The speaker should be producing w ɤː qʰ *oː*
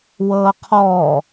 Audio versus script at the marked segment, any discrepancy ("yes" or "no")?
yes